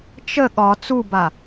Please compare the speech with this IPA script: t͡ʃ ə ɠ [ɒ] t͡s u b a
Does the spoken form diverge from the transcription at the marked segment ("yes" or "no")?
no